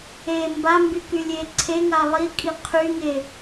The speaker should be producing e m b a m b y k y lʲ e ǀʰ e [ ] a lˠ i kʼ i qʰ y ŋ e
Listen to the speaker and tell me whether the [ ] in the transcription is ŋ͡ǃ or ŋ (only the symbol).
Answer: ŋ